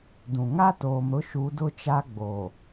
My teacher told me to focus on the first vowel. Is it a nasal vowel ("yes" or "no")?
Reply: yes